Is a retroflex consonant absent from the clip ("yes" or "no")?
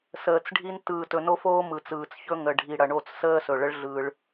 no